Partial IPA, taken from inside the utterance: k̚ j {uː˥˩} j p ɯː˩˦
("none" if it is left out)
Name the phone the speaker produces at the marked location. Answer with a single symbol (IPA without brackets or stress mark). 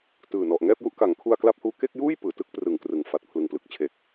uː˥˩